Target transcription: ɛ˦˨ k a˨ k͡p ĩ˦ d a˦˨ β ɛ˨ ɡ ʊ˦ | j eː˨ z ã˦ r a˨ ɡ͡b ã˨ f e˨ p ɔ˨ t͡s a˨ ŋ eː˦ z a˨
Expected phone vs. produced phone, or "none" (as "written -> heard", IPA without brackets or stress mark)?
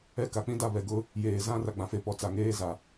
none